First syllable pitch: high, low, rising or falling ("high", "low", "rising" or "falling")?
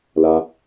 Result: low